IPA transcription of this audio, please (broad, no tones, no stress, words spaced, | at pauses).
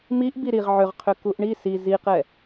miʔbi ɾiʁ ʕʏʁqʰʏ kuʔɳi si ziqɛ